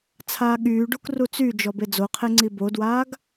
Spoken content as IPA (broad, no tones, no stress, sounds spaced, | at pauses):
t͡sʰ aː ɠ yː ɖ u k r u t͡s y d͡ʒ ɔ b e d͡z o qʰ e ŋ͡ǀ i b o d w aː ɡ